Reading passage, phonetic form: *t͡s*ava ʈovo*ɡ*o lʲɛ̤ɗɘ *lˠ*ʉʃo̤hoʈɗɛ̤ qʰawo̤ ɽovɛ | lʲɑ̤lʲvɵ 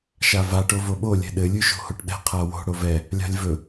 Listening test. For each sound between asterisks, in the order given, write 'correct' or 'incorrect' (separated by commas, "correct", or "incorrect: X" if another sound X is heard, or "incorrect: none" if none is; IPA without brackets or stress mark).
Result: incorrect: ʃ, incorrect: ɓ, incorrect: lʲ